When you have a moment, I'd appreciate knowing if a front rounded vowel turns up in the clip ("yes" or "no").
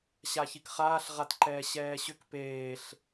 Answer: yes